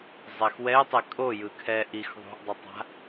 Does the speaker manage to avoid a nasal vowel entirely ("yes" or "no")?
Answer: yes